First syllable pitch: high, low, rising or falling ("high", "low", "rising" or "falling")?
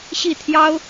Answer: falling